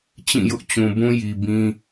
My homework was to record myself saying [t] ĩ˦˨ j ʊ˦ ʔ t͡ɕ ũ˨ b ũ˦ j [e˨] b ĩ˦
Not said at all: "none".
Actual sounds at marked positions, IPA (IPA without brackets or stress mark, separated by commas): t͡ɕ, i˨